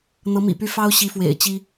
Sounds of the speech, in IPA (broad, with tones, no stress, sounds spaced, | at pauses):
n̪ ɤ˧˥ m ḭ˨˩ p y˥˩ f ɑ˥ ʊ̯ ɕ i˧˥ f w ḛ˨˩ ɪ̯ t͡ɕ i˥